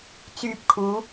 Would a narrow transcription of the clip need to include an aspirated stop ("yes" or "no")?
yes